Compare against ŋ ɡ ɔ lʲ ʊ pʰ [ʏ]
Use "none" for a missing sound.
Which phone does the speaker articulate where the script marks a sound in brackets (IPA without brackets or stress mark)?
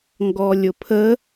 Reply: ə